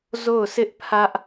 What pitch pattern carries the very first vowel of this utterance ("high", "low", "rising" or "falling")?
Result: falling